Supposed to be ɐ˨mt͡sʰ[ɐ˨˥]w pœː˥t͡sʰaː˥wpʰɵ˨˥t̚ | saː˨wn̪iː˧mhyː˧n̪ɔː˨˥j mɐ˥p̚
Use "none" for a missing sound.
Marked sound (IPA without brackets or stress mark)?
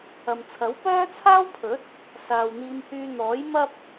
ɐ˨˥